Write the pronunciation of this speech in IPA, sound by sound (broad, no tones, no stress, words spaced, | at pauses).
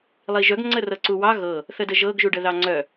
lˠiʒœɡ ŋ͡ǀərɤǀuwɑ ɣɤ | θədəʒɤɡ ʒuɖəðɑŋ͡ǀœ